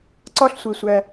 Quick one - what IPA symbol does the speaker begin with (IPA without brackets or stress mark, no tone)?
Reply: ǀ